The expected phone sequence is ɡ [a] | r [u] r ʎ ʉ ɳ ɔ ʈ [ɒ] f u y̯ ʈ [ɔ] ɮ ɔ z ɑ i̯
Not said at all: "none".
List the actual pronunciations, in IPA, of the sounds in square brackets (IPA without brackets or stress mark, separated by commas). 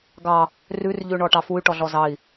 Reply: ɑ, ʉ, ɑ, ɔ